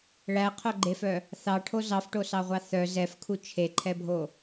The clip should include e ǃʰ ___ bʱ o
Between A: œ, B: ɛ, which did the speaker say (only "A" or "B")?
B